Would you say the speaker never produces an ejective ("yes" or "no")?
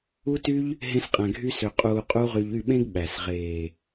no